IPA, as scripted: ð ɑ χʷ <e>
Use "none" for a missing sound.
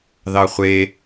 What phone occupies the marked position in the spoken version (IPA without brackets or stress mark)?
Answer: e